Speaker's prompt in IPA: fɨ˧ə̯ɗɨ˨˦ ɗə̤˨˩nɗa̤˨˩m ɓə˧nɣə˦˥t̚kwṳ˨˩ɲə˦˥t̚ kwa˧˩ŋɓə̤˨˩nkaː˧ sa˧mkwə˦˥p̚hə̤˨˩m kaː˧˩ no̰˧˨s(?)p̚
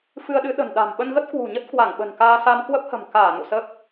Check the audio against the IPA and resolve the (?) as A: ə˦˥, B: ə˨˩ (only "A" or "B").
A